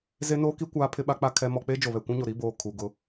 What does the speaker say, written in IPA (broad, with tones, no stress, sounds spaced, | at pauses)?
z e˦ n oː˦ k i˦ kʷ aː˦ pʰ ɪ˦ ɓ a˦ k͡p a˦ kʰ ɛ˦ m ɔ˦ k͡p e˦ d͡ʒ o˨ β ɛ˨ kʷ ũ˦ ɲ o˨ ɾ i˦ b oː˨ kʰ u˨ ɡ ʊ˦